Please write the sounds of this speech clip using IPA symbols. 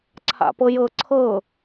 ǀʰ a̰ p ɤ j ɤ ǀʰ ɤ

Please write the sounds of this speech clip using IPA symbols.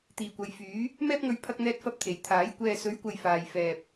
t̪ iː˨ kʷ ɐ˨˧ j f yː˨˥ | m ɛː˥ p̚ ŋ ɵ˧ ɥ pʰ ɐ˥ k̚ n̪ ɛː˥ t̚ f ɐ˥ p̚ t̪ʰ e˨ j t̪ʰ aː˨˥ j kʷ ɛː˧ s ɵ˨˥ ɥ kʷ ɐ˨ j f aː˧ j f ɛː˧ p̚

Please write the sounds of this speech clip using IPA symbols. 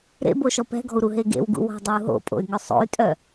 ɾ ḛ b o ʃ ɔ p ɛ̤ ɡ ɔ̤ u̯ ɾ u ɦ e ɡ ḛ w ɡ ṵ w ɔ̤ dˤ e u̯ ɦ o̰ pʼ o̰ y̯ ŋ œ sˤ o̰ y̯ tʼ œ

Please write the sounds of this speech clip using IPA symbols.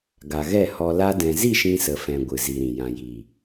ɡ a˨ ɣ ɛ˦˨ h ɔ˧ l a˧ d ɛ̃˨ z i˦˨ ʃ ĩ˧ s ə˨ f ɛ̃˨ ɡʷ ɨ˨ z i˨ ɾ ĩ˨ j ã˨ j iː˨

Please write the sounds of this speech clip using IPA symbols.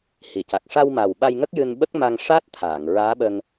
h i˨˩˨ c a˨˩ k̚ ʂ a˧ w m a˨˩ w ɓ a˧ j ŋ ə˦˥ k̚ j ɨ˧ n ɓ ə˦˥ k̚ m a˧ ŋ ʂ a˦˥ t̚ t̪ʰ aː˨˩˨ ŋ ɹ aː˧˥ ɓ ə˧ ŋ

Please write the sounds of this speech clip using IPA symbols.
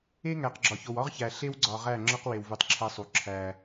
e˦ ŋ æ˨ q ɡ͡ǁ ɒ˨ ç o˨ w ɒ˦ ʁ ç æ˨ ɬ e˦ w ɡ͡ǀ ɒ˨ ʁ æ˦˨ ŋ͡ǁ ɒ˦ q w e˨ w v u˨ tˤ ǁʰ æ˦ sˤ u˨ ǁʰ æ˦

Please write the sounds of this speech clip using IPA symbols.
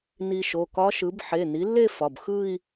n i˧ ʃ o˩˧˩ k ɒ˧˥ ʃ ɯ˩˥ b ħ e˩˧˩ n i˩˥ lː e˥˧ f ɒ˩˧˩ b x ɯ˥˧ i̯

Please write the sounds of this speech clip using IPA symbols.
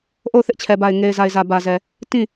ʔ o˦˨ ʊ̯ θ ɪ˦ ʔ t͡ɕʰ ɛ˨ b a˨ ɪ̯ ŋ e˨ ɪ̯ z a˨ ɪ̯ z ä˨ b ä˨ z ɛ˨ | t ĩ˦˨

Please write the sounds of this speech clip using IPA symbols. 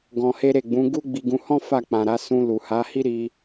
ɡ ɔ̃˧ h e˦ ɾ e˦˨ ɡ͡b ũ˨˦ ɡ u˦ ɡ͡b i˧ ɡ ũ˧ h ɔ̃˦ f a˦˨ k͡p ã˨ ɾ a˧ s ũ˧ l u˨ h a˨˦ h i˦ ɾ i˧

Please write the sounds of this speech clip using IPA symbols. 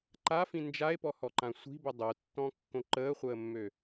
ǃ a f ĩ n d͡ʒ a e̯ p ɔ h ɔ ǃ ã sʷ i̤ b ə dˤ o tː ɔ̃ kː õ ǃ əː χʷ əː mː ø

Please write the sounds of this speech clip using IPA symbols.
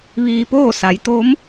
ʋ iː˧ p oː˥˨ s a˩˧ j t̪ o˧˥ m

